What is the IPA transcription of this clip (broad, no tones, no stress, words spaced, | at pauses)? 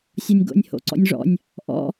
sʲɔnʲɡo̰nʲ ho̰ǀɔ̰nʲʐɔ̰nʲ | ʔɔ̰